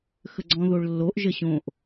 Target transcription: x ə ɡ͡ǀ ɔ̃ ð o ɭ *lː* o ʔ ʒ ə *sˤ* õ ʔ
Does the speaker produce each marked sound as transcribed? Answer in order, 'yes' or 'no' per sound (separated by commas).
yes, no